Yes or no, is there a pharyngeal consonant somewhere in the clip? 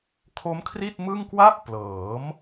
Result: no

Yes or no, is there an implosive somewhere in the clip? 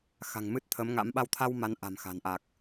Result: yes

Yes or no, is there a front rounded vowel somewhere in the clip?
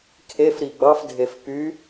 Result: yes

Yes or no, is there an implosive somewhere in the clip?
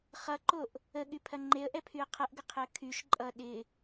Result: yes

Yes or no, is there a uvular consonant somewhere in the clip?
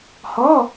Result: no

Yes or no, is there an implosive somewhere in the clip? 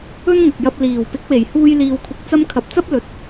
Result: no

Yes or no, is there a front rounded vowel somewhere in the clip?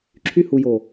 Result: yes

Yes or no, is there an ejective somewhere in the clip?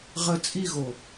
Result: yes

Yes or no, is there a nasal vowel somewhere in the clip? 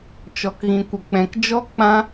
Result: yes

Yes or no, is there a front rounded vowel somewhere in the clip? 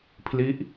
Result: no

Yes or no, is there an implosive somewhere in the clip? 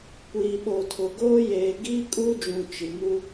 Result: yes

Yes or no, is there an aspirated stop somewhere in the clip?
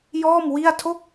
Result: yes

